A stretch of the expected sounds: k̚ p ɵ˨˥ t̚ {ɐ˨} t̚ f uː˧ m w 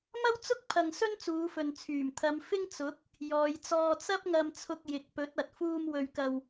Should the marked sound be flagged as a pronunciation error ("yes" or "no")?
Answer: no